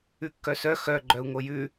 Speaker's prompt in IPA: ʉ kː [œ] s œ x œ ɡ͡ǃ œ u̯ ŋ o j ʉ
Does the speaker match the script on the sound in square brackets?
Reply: yes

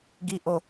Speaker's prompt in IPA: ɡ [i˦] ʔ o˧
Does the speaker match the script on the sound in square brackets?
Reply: yes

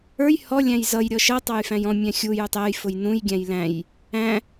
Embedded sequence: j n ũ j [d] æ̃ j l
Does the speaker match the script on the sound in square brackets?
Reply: no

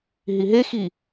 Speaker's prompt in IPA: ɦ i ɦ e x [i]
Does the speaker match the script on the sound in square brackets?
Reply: yes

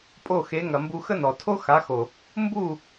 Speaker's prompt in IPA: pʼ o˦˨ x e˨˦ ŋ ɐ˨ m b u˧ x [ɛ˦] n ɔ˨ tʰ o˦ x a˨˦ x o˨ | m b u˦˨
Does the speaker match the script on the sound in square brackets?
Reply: no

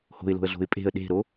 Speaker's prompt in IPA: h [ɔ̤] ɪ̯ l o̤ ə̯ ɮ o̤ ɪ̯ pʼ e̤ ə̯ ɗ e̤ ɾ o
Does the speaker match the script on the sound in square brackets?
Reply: no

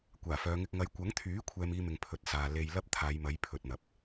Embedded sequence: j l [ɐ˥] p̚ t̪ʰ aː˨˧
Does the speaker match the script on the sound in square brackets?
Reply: yes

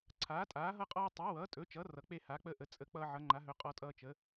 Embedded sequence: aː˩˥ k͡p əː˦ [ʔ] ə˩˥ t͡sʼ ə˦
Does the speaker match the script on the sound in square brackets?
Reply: yes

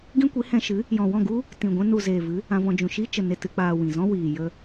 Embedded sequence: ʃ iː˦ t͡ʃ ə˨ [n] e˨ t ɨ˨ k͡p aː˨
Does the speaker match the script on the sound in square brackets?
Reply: yes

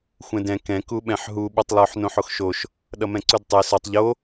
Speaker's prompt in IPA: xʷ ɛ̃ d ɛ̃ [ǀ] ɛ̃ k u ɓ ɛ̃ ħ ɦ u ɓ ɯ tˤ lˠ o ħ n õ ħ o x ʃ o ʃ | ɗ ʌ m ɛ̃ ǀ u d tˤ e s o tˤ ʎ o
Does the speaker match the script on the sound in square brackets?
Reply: no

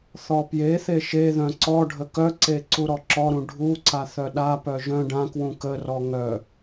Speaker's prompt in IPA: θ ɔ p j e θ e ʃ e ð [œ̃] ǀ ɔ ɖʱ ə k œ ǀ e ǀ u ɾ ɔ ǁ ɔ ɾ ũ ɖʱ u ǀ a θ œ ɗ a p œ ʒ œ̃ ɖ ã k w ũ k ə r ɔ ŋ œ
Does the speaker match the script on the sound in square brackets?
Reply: yes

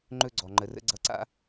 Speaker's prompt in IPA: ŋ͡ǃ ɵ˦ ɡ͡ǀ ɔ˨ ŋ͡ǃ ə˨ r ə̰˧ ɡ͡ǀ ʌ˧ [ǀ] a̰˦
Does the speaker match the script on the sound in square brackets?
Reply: yes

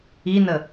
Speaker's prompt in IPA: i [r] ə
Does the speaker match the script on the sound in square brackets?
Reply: no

